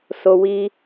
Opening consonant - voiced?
no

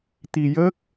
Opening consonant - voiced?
no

